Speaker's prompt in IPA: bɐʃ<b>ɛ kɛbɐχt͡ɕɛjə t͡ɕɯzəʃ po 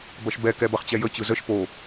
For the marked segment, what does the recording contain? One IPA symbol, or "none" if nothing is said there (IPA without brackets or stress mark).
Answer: b